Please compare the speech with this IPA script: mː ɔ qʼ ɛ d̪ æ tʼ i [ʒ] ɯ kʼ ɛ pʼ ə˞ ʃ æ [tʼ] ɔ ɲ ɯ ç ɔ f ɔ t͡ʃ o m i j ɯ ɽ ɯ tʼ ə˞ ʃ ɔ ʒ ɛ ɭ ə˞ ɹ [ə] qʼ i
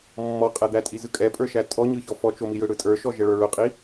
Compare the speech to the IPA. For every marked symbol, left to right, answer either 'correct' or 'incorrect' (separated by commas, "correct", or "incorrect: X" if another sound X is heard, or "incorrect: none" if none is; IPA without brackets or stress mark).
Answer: incorrect: z, correct, incorrect: ʊ